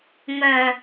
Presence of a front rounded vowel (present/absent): present